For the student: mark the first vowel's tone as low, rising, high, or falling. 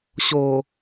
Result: low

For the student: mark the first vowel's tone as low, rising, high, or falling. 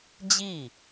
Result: falling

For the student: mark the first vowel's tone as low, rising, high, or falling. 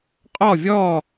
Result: falling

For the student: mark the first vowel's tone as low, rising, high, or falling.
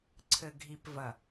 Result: low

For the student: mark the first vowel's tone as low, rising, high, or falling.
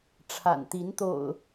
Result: low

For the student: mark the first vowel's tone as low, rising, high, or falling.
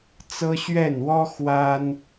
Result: high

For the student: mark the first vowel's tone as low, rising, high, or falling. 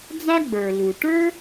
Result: high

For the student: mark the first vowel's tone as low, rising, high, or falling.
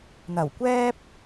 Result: low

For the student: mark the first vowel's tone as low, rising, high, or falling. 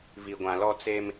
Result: low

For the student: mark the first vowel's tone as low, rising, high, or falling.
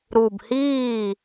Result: low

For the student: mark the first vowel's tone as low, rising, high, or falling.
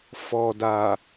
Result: low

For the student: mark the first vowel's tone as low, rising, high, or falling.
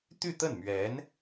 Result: falling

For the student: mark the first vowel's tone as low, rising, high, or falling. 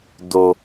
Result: low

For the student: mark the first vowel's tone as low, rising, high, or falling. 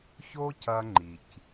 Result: high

